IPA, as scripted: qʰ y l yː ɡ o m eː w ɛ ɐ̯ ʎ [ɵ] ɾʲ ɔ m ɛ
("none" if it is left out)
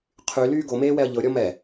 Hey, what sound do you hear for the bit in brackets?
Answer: ɤ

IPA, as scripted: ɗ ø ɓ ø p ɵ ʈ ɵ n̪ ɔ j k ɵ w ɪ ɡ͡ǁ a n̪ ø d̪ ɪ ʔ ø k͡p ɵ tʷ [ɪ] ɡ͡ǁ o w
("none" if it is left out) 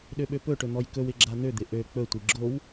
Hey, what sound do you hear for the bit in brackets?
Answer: i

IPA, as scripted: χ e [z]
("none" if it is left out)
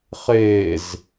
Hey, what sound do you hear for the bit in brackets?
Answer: z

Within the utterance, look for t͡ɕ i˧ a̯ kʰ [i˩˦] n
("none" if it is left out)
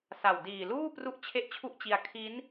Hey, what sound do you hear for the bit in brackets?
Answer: i˦˥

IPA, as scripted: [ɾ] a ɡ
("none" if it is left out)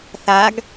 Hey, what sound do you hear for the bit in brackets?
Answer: θ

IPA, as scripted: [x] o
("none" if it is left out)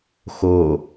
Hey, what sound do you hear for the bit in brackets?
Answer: x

